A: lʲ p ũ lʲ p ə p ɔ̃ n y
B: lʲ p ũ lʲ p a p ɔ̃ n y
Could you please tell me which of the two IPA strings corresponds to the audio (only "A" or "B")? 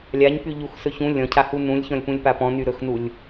B